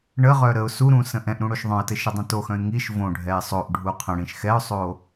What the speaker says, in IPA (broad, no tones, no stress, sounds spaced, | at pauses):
ɳ ə ʁ œ ɾ ə ʊ̯ s u ɾ ũ s ə̃ ʔ ɛ̃ ʔ ɾ ũ ɽ o ʃ ðˤ œ̃ ə̯ t ɘ ʃ ɘ dˤ ũ t o x œ̃ ɪ̯ ŋ i ʃ v õ ɖʱ ɛ ɪ̯ sˤ o ʔ ɖʱ u qʰ ə̃ ɽ ĩ ʃ x ɛ ʊ̯ sˤ o